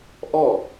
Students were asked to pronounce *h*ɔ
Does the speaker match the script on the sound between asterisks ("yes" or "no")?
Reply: no